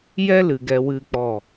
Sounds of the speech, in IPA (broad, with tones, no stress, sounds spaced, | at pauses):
j ɛ˦ l ɨ˨ ɡ ɛ˧ w ɨ˦ k͡p ɔ˦˨